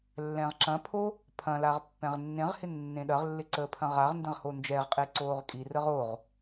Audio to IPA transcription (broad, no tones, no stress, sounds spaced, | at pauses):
lː ɛ̃ ʁ ǁ ɐ̃ pʰ o | pʰ ɐ̃ l a ʁ pː ɛ̃ ʁ nː ẽ ʁ h ɪ nː ẽ ɗ ɐ ʁ lː ɪ ǀ əː pʰ ɐ̃ ʁ a ʁ n d ɛ̃ ʁ h o n d͡ʒ ɛ ʁ qʼ e ǀ oː ʁ kʼ i r ə ʁ o ʁ